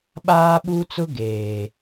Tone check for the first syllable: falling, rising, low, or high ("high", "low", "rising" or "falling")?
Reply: high